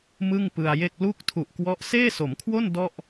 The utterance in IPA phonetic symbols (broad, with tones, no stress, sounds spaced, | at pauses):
m ɯ˥˩ ŋ p ɯ˧ a̯ j e˥˩ k̚ l u˥˩ k̚ tʰ u˨˩ ʔ k w ɔ˦˥ ʔ s eː˥˩ s o˩˦ m kʰ w o˥˩ n d ɔ˥˩ ʔ